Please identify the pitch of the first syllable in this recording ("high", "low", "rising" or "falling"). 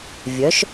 rising